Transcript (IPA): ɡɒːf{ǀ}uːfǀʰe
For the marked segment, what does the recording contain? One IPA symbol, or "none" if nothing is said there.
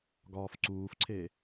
ǀ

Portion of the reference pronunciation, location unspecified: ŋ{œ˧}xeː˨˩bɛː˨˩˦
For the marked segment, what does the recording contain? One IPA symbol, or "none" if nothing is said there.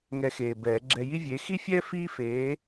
ɛ˧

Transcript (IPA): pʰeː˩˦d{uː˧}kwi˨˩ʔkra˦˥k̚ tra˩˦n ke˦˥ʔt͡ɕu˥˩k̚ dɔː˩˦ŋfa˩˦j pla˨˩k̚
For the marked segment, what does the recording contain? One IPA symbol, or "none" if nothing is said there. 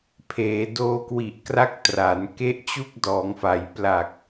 oː˧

